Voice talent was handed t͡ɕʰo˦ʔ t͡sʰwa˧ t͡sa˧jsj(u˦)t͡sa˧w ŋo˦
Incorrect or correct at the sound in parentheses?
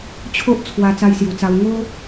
incorrect: u˨˩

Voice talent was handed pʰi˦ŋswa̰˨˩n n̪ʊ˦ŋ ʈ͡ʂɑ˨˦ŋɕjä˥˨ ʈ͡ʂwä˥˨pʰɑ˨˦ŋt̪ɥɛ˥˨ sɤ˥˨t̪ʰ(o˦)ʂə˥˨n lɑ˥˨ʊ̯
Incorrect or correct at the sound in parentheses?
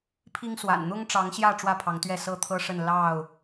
incorrect: ɤ˦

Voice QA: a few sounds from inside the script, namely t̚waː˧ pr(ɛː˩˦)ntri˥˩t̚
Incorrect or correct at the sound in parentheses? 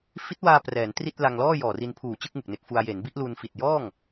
correct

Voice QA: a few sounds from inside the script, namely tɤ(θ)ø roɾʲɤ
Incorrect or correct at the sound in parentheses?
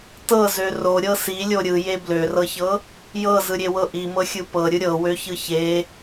incorrect: z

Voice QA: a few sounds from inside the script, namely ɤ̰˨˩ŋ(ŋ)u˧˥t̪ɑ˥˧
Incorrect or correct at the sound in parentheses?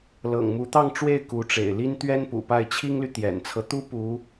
incorrect: m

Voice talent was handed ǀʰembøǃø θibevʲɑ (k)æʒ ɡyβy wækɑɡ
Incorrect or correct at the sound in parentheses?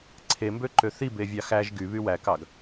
incorrect: x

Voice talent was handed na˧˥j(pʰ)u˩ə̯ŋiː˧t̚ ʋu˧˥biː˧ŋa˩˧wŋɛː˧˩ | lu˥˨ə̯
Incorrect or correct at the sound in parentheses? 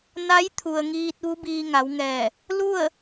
incorrect: t̪ʰ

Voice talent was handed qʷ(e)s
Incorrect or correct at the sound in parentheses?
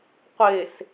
correct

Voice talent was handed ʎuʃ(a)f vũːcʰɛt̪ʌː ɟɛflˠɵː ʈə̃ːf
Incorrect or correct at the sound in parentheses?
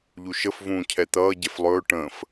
incorrect: ə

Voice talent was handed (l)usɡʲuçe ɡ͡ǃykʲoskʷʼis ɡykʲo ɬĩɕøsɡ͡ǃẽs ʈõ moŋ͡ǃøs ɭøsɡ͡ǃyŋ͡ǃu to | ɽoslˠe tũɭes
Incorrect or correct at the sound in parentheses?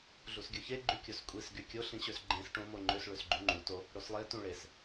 incorrect: ɮ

